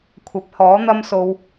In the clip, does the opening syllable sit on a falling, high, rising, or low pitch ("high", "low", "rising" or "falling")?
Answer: rising